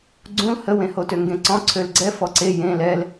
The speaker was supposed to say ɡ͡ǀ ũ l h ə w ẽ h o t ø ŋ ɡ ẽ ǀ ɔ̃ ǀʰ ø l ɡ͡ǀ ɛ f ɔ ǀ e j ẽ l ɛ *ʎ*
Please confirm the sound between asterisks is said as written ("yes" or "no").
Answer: no